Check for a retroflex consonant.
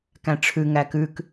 present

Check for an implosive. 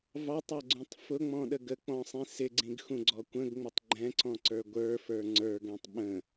present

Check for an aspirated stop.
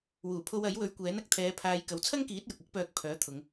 present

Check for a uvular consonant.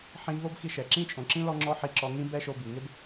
absent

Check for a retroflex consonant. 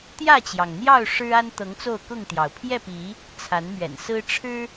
present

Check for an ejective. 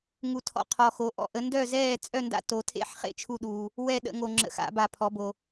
present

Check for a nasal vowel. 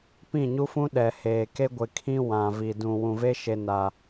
present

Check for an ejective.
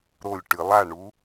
absent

